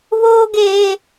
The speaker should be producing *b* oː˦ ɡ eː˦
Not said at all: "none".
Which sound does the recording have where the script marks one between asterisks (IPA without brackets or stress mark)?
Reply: β